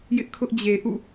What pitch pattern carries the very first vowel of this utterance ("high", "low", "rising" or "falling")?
high